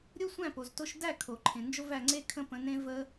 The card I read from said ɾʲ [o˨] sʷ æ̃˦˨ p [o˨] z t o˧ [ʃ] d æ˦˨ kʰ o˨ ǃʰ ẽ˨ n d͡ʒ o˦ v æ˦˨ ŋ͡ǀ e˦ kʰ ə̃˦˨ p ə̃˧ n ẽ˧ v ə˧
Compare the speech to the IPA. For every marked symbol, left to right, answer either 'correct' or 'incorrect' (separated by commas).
incorrect, correct, correct